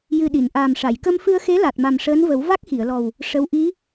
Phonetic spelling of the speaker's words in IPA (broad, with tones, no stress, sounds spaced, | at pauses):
j ɨ˨˩ ɗ i˨˩˨ n ʔ aː˨˩ m ʂ a˨˩˨ j k ə˧ m f ɨ˧ ə̯ x e˧˥ l a˨˩ t̚ m a˨˩ m ʂ əː˧˥ n v ə˨˩˦ w v a˦˥ k̚ x i˨˩˨ ə̯ l ɔ˨˩ w | ʂ ə˧˥ w ʔ i˧˥